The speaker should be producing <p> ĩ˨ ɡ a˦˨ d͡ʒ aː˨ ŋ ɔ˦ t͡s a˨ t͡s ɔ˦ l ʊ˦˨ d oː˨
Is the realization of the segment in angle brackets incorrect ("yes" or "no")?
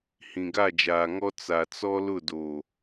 yes